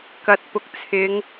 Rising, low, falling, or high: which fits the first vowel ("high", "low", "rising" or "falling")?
low